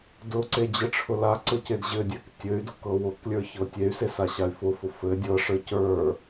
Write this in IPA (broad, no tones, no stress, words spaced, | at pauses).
dʊǀe d͡ʑɘʈ͡ʂʰʊlaǀɤc edʑɘdʲɛk tʲɘy̯dʊ kɤwʊklʲə˞ çɤtʲey̯se saɕay̯fʊfʊ fɘ dʲɤʂə˞ cə˞